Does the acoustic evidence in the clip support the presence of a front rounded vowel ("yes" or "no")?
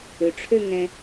yes